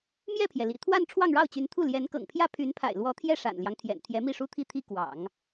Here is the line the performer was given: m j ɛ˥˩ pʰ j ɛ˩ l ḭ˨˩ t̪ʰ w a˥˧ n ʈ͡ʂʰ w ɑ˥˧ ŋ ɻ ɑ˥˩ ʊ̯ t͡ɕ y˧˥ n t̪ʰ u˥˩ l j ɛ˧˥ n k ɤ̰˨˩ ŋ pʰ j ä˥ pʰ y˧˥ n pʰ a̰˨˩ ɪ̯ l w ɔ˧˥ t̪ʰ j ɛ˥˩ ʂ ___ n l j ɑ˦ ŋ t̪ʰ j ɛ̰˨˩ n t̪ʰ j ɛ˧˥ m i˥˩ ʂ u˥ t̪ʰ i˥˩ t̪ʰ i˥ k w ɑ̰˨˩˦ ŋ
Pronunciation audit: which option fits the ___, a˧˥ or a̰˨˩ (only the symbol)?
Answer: a̰˨˩